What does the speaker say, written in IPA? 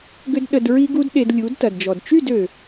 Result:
ɡʏ˦dɗə˧d ɹi˦ɡu˦dɗe˧d lʲu˨˦dtɐ˨dd͡ʒɔ˨d t͡ʃy˦˨dø˨

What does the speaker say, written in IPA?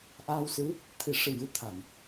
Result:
ʔaː˧wsɨ˧˥ | t̪ʰi˨˩˨ ʂɨ˨˩jɨ˨˩˦t̪ʰa˨˩˨n

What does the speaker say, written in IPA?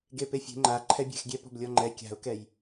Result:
ɡepefʲe̤ ŋ͡ǃa ǃʰɛbʲɛ̤xɡʲɛ pɔ̤blʲɔŋ͡ǃɛ kʲa̤ʊ̯kɛj

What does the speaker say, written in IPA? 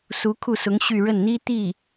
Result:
su˧˥kʰu˥˩sʊ˧˥ŋ ɕy˥˧ ɻə˥˩nn̪i˥t̪i˥˩

